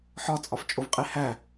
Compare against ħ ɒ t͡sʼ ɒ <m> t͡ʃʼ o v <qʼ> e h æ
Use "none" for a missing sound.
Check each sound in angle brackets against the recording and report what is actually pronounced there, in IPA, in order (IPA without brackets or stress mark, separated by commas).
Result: f, qʼ